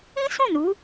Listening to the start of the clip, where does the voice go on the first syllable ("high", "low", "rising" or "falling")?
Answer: high